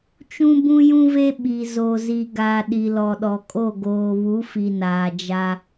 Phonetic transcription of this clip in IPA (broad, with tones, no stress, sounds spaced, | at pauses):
t͡ʃ ũ˦ b ũ˦ j ũ˦ v e˦ ɓ i˨ z o˨ z i˨ ɡ a˨ ɗ i˨ l ɔ˨ ɗ ɔ˨ kʼ o˦˨ ɡ oː˨ β u˨˦ f i˨ n aː˨ d͡ʒ a˦